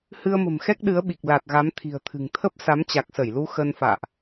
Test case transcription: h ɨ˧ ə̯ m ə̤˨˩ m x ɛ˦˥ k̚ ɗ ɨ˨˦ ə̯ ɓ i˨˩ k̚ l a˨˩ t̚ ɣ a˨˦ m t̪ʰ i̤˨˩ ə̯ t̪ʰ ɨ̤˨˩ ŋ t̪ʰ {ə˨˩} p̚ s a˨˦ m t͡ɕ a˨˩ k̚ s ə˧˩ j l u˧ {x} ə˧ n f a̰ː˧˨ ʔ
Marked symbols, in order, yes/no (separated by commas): no, yes